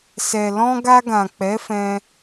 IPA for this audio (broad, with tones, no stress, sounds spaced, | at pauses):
s ɛ˨ l ɔ̃˧ ɡ a˧ ɡ ã˨ k͡p ɛ˨˦ f ɛ̃˧